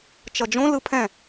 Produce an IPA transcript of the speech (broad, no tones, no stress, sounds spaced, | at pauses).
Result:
t͡ʃ ʌ d͡ʒ õ l ɯ pʰ ɛ̃